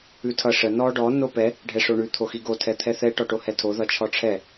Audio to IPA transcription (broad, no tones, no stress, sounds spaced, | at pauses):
ʉ tʰ ʌ ʂ ə n ɔ ɖ ɔ n o p ɛ | ɖʱ ɛ ʂ o ɳ ʉ t̪ʰ o x i ɡ o tʰ ɛ t̪ʰ ɛ θ ɛ ʈ ɔ ʈ o h ɛ tʰ o ð ʌ t͡ʃʰ ɔ ʈ͡ʂʰ ɛ